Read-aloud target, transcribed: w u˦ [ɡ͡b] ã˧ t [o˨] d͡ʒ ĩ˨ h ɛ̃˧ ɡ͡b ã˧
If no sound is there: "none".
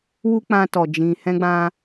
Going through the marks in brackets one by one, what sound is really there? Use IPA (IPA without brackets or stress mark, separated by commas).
k͡p, ɔ˨